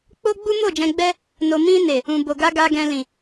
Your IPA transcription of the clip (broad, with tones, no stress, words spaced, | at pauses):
k͡po˦ɡ͡bu˦ mo˦˨d͡ʒɛ̃˧ɡ͡bɛ˦ | no˨mĩ˧ne˨ | ũ˨bo˨ɡa˧ ɡa˨ɡɛ̃˨lĩ˨